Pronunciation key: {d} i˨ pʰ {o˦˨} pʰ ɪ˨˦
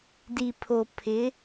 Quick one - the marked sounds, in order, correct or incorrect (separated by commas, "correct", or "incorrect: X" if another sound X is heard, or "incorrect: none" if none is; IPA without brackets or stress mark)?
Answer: correct, incorrect: o˨